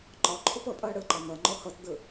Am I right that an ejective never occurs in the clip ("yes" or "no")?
no